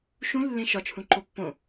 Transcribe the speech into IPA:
ʃ ũ lː ẽ ʃ ɒ t͡ʃʰ ũ ǃ o pː õ

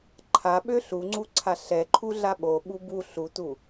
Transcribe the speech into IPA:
ǃʰ a ɓ ø ɬ u ŋ͡ǀ u ǀʰ a ɬ ɛ ǃʰ u ɮ a ɓ o ɓ u b u ɬ u t u

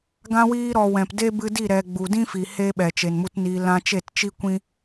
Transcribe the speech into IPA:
ɡ ã˧ w iː˧ ɾ ɔ˨ w ɛ̃˨ p d e˦ b ɨ˧ d i˦˨ ɾ ɛ˨ ɡ͡b u˨ d ĩ˦ f i˨ h e˦ ɓ ɛ˨ t͡ʃ e˨ n m u˧ t n iː˧ l ã˧ t͡ʃ e˦˨ t t͡ʃ i˦ kʷ ĩ˦

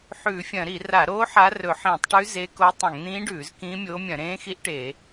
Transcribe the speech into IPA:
ħ ʉː˧˩˧ fʲ ɐ̃˧˩˧ ɾ i˧˩˧ r a˧˩˧ ɾ oː˧˥ ħ a˧˥ r ɵ˧˩˧ ħ ĩː˧˩˧ tˤ ʈ ʉ˧˥ z e˧˥ k o˧˥ tˤ ɐ̃˧˩˧ ŋ n̪ ĩː˧˥ ɖ ʉː˧˩˧ z k ĩː˧˥ mʲ oː˧˥ mʲ ɐ̃˧˩˧ ɾ ẽː˧˥ x i˧˥ ʔ ʈ e˧˩˧

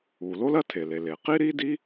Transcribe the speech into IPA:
u˩ l o˥ l ɐ˥ tʰ e˩ l e˩ l e˩ q i˥ ɾ i˥ d i˥

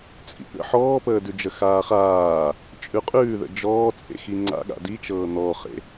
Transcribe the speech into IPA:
t͡sʼ ḭ ɠ ə̰ ħ ɔː p əː d ʉ d͡ʒ ə x aː χ aː | t͡ʃʼ ʉ qʼ ʉː ð ə̰ d͡ʒ ɔː t͡sʼ ḛ x i ŋ͡ǀ a̰ ɠ a̰ d i t͡ʃ ɤː n̪ ɔ χ ḛ

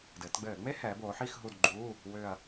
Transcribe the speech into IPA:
d ɘː˩˧ t ɡ͡b ɘː˧˩˧ ŋ͡m e˥ h ɛː˩˧ b oː˩˧ ħ i˦˨ x ɦ u˦˨ d ɡ͡ǃ uː˧˥˧ | w ʏː˦˨ ɐ̯

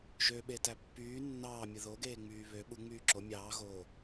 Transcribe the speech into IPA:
ʒ ø ɓ e t æ pː yː nː ɑː mʲ ɯ ð o ɡ eː ŋ͡m yː β ø ɓ u ŋ͡m yː ǁ o mʲ ɑː ɣ oː

